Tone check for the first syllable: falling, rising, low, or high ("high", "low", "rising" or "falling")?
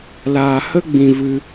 low